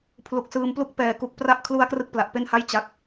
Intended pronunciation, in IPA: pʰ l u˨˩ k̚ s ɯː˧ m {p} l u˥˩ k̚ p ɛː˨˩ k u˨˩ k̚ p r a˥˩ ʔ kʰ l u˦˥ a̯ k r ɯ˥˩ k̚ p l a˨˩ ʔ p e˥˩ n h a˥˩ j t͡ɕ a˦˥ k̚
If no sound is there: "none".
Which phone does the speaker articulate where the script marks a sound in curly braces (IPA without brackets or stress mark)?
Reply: p